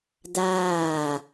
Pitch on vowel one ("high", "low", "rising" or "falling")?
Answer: falling